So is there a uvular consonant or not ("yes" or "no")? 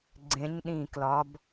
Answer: no